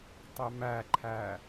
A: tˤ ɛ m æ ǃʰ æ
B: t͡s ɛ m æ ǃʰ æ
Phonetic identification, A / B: A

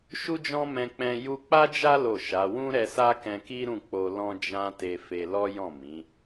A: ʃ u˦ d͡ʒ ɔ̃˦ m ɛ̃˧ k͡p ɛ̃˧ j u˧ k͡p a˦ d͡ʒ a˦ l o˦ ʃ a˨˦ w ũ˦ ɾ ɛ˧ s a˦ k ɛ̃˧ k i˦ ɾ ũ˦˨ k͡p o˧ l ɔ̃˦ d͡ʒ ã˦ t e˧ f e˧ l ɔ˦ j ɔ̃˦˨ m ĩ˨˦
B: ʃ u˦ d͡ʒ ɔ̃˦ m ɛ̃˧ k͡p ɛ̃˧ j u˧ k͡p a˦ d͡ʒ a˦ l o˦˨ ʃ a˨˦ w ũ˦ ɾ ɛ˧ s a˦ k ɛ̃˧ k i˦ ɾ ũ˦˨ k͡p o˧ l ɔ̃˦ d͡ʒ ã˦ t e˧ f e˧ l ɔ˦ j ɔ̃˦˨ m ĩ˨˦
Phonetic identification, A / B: B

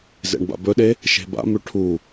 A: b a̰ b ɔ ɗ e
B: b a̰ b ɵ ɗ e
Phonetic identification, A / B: B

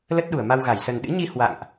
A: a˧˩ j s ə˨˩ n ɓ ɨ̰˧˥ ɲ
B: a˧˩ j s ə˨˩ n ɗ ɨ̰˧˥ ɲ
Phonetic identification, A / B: B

